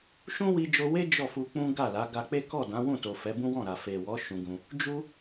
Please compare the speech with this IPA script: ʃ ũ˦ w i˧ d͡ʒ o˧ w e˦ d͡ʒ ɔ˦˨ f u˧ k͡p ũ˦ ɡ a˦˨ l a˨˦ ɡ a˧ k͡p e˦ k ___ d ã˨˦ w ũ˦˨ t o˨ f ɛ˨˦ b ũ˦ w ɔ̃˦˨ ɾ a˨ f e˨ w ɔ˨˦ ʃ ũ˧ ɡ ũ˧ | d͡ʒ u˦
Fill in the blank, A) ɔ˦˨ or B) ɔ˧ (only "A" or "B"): A